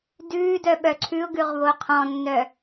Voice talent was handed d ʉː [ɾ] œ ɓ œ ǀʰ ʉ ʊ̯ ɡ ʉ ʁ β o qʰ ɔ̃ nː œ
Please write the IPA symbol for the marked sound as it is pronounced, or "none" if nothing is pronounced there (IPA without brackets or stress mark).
d